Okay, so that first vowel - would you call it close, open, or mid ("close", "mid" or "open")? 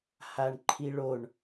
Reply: open